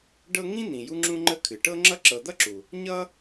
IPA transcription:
ɖɤ˦ŋĩ˥ n̪ĩ˨ju˥ŋ͡ǁũ˥ ŋ͡ǃə˦kʰɨ˩ʈɤ˥ŋ͡ǁʌ˥ ǁɤ˨d̪ʌ˥ǁu˩ | ɲʌ˥

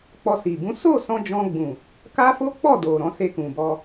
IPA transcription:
k͡pɔ˧si˨ bũ˨˦ so˦˨sɔ̃˧ d͡ʒɔ̃˧ɡ͡bũ˨ | ka˦fo˦k͡pɔ˦˨ do˨ ɾɔ̃˨˦se˧kũ˨bɔ˧

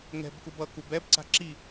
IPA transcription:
ŋɛ̤bkub ʌkub ɛbǀa̤ ǁi

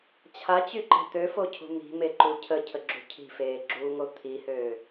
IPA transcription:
t͡ɕʰat͡ɕyǃɛ̤ t̪øfocʰṳ mi̤meǃu cʰəcʰəɡ͡ǁṳ cʰi̤feːɡ͡ǁuːŋo t̪ʰihøː

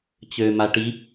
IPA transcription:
t͡ɕøma ʈi

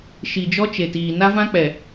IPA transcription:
ʃi˨d͡ʒɔ˦t͡ʃe˨tiː˨ na˦vã˦k͡pɛ˨

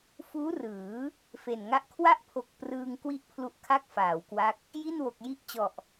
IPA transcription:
fuː˦˥rɯː˩˦ | fe˨˩nŋa˥˩ʔ kʰwa˥˩ʔpʰo˨˩k̚ prɯː˧ŋ kwi˥˩ʔpʰlu˦˥ʔ kʰa˥˩k̚faː˩˦wkwa˦˥k̚ | ji˥˩nwo˨˩k̚ji˥˩ʔt͡ɕɔ˨˩ʔ

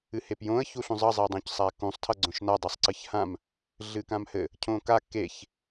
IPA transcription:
ɨhepjõə̯ çuɬũzˤʌ zˤedˤõcsˤakũsˤ tʰʌɡ͡ǀõʃna dˤɨsˤǀɨçhãm | ɮɨkãmhɘ | cʰõka keç

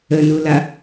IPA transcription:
ənula

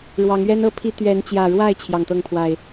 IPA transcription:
ɻwɑ˨˦ŋɥɛ˦n ɤ˦pʰi˦ t̪ɥɛ˨˦nt͡ɕjä˨˩ɻwa˥˨ɪ̯ t͡ɕʰjɑ˨˩ŋt̪ɤ˥˨ŋpʰwa˨˩ɪ̯

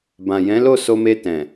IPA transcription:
bã˨jɛ̃˨˦lo˦˨ so˧me˧tɛ̃˨

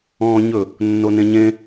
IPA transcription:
ɔ̃ːɲɵ | nːonẽɲẽ

